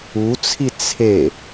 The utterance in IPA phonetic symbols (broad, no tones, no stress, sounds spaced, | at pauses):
u t͡sʰ i t͡sʰ e